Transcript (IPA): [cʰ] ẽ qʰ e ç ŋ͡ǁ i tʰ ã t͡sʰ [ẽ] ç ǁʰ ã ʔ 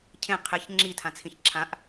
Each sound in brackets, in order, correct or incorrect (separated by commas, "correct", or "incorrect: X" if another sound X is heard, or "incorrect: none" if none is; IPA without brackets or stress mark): correct, incorrect: ĩ